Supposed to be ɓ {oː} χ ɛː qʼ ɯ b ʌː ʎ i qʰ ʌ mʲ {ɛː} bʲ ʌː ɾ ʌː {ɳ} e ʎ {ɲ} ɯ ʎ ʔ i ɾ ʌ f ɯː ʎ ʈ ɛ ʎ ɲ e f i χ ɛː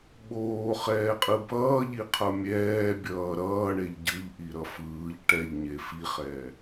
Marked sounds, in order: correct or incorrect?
correct, correct, correct, incorrect

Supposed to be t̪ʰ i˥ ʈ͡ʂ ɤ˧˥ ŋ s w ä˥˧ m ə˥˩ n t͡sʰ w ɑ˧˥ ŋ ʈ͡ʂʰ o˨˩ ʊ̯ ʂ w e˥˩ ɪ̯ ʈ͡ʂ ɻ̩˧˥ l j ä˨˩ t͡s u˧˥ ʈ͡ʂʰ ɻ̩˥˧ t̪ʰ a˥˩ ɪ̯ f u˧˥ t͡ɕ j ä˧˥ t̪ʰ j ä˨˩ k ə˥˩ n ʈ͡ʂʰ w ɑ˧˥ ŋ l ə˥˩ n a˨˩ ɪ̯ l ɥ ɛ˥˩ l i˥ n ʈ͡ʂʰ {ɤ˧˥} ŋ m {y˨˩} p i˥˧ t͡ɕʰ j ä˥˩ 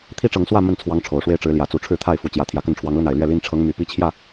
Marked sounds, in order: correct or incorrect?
correct, correct

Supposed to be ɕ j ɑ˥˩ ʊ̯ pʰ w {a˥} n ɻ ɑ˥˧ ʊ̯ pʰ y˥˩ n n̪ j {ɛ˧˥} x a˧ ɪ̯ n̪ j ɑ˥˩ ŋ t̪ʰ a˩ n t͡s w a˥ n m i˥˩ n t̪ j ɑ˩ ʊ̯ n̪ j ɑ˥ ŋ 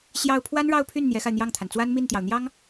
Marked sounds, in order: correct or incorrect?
correct, correct

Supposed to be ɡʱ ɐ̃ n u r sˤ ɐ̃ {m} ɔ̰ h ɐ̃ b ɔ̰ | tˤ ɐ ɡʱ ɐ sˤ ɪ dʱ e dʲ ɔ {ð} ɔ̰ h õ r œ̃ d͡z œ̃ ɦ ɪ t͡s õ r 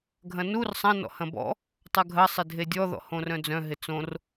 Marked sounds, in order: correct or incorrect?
incorrect, correct

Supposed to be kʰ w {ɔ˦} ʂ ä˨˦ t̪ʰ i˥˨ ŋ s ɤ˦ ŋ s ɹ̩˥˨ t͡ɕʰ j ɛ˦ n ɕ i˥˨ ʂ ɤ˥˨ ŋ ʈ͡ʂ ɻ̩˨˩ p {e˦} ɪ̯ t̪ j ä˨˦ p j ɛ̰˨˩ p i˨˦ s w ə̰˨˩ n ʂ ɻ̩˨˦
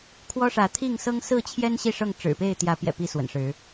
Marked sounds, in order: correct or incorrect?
correct, incorrect

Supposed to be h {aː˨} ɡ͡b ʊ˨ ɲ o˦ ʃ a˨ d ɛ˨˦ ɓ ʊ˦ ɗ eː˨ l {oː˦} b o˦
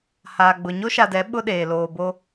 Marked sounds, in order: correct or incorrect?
correct, incorrect

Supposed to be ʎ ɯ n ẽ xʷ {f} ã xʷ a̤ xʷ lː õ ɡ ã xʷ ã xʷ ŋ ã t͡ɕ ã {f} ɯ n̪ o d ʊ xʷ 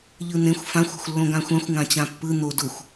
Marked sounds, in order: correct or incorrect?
correct, incorrect

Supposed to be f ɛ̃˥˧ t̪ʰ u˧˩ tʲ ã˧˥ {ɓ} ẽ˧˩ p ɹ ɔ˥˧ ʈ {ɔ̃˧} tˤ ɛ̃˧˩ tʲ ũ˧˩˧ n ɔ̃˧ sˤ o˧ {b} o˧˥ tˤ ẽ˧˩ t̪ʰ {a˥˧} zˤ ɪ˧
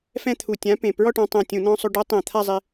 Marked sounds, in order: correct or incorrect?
incorrect, correct, incorrect, correct

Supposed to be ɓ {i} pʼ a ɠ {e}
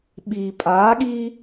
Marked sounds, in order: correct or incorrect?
correct, incorrect

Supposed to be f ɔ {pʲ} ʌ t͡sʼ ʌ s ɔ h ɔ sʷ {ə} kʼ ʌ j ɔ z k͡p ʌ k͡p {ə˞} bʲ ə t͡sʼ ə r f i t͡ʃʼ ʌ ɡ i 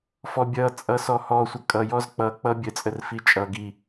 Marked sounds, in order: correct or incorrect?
incorrect, correct, incorrect

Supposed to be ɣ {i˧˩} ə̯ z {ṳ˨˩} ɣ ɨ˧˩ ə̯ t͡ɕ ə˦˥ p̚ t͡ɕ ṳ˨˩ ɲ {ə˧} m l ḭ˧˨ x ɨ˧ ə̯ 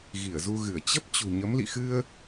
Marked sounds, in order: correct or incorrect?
correct, incorrect, incorrect

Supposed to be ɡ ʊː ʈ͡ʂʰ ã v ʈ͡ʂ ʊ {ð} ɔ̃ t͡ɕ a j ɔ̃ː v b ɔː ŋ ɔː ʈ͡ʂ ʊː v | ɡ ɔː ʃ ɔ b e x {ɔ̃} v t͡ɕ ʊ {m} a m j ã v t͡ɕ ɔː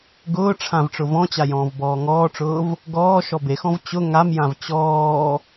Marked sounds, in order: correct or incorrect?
incorrect, correct, incorrect

